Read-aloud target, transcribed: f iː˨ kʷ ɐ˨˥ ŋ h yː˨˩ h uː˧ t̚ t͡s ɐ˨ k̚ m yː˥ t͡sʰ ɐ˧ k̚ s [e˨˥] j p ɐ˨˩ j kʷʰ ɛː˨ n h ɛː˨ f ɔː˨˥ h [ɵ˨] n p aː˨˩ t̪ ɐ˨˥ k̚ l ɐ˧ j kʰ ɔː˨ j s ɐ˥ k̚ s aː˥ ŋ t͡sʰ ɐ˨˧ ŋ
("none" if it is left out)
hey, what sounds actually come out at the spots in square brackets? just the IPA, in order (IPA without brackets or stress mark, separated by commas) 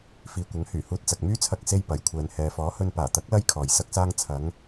e˧, ɵ˧